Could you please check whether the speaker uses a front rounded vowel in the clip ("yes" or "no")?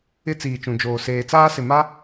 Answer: no